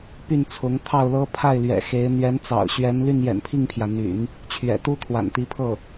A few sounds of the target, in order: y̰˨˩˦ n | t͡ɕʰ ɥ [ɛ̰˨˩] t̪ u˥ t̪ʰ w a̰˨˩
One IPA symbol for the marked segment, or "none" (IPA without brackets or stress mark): ɛ̰˨˩